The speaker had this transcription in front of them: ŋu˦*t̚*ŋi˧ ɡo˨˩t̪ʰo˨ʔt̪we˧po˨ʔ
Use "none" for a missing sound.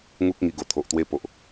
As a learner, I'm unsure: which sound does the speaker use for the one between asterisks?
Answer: k̚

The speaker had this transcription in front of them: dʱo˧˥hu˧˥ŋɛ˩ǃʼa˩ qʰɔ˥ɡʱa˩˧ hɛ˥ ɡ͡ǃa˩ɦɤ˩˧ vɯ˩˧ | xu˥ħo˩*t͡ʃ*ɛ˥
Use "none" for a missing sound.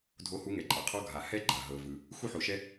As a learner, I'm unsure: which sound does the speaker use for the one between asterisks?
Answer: ʃ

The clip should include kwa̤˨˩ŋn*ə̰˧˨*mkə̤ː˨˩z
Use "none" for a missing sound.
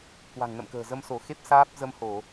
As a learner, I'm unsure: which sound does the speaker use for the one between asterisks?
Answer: ə̰˧˨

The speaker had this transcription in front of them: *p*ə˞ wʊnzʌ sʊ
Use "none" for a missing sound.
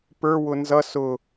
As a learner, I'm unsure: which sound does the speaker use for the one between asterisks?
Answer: p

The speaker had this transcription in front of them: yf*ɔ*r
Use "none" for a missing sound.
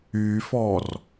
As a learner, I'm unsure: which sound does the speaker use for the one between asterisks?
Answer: ɔ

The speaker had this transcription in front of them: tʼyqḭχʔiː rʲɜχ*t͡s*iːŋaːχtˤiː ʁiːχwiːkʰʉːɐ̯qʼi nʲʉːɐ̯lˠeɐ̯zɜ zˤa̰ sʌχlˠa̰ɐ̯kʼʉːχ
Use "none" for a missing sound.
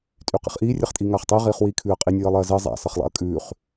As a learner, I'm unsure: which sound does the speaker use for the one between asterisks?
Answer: tʼ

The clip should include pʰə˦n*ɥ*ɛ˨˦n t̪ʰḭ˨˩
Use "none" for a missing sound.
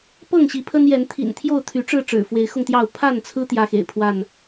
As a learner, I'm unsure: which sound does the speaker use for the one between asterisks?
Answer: j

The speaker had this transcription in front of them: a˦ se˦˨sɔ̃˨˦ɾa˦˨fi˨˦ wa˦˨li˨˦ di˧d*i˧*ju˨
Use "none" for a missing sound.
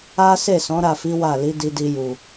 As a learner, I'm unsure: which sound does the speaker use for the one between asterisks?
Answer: i˧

